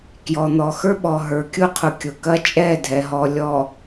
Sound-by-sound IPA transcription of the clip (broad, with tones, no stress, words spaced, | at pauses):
kjɔ˨n̪ɔ˨xə˞˦ɓɔ˨ ɦə˞˨kʲʊ˦qʰʊ˨ kʲʊ˨kɐ˦ t͡ʃʼɛ˦˨dʱɛ˨ɦɔ˨lʲɔ˨